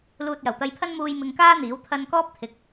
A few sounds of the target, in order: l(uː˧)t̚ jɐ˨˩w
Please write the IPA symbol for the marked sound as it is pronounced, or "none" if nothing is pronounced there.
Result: uː˧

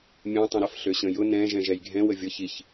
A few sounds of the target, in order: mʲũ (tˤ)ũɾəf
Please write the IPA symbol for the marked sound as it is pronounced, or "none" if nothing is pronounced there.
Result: tˤ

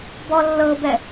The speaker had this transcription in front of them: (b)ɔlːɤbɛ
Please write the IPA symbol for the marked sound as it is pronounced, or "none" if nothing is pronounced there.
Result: b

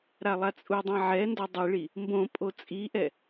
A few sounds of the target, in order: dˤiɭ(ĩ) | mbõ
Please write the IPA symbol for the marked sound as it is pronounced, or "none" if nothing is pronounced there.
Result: i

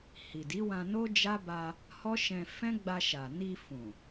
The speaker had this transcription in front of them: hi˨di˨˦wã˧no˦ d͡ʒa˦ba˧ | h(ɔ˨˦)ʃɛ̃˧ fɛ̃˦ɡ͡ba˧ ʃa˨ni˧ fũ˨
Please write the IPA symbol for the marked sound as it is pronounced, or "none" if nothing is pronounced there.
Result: ɔ˦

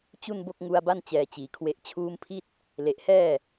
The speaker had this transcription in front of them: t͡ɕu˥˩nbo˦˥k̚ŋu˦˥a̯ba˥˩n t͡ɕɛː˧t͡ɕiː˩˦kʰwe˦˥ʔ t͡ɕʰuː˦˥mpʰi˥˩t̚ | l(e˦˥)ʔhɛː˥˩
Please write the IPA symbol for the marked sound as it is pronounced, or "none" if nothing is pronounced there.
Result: e˨˩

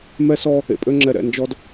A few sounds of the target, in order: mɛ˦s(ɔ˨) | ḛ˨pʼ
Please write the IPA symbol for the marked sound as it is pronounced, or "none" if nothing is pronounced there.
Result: ɔ˦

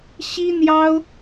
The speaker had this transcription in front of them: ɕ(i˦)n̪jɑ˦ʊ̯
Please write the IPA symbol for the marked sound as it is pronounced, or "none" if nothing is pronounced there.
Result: i˦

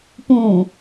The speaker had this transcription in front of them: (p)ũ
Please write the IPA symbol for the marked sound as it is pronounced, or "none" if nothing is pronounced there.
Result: p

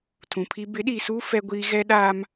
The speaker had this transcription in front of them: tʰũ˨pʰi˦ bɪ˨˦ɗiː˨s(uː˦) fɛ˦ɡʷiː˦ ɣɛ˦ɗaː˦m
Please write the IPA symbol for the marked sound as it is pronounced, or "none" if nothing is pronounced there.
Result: uː˦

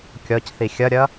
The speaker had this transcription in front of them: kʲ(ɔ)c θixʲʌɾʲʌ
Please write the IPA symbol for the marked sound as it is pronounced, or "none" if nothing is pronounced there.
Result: ɔ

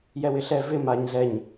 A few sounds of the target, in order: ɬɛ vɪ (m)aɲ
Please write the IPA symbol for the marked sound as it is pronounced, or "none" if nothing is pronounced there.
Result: m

